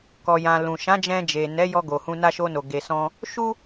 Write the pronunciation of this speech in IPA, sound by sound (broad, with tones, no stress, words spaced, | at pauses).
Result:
kɔ˨jã˨ lũ˨ ʃã˨˦d͡ʒɛ̃˧d͡ʒe˨ nɛ˨˦jɔ˧ ɡo˨hũ˧ na˧ʃo˧no˨ ɡe˧sɔ̃˦ | ʃu˦